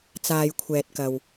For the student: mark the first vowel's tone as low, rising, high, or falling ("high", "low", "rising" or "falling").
low